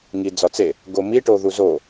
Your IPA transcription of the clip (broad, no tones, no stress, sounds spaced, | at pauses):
ŋ i d͡z ɒ t͡s e | ɡ o m i ʈ o ð u z o